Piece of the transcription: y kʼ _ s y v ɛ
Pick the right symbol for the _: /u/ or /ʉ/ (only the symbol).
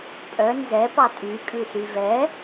ʉ